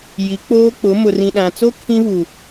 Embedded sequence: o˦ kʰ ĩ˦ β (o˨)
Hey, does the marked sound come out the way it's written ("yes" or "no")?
no